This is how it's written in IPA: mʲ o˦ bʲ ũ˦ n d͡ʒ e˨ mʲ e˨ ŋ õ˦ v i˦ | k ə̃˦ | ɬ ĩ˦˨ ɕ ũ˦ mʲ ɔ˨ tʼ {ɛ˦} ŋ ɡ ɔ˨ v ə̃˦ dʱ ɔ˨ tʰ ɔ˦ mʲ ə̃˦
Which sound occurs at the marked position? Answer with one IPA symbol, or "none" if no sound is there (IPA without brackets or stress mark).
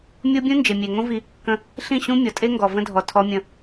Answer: e˦